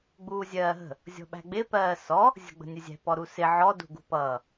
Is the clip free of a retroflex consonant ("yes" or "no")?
yes